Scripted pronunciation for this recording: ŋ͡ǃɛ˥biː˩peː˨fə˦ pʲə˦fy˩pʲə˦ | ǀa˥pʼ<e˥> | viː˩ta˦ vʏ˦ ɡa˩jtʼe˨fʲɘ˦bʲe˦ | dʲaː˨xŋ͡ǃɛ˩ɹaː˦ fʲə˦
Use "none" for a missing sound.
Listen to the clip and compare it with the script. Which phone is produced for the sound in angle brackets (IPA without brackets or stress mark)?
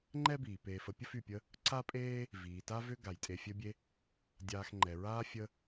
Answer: eː˥